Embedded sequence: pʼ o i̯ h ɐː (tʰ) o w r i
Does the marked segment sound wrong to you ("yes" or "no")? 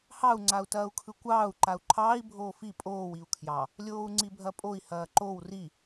yes